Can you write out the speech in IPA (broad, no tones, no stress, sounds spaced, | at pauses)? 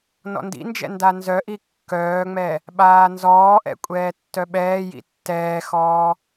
n ɔ̰ n d ḭ n d͡ʒ ɛ̰ n d a n z œ ʔ i kː œː ŋ͡m ɛ | ɓ aː n z ɔː ʔ ɛ̰ kʷʼ ɛː tː œ ɓ ɛː j ḭ tː ɛː x ɔː